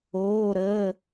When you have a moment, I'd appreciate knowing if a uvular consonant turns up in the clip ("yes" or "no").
no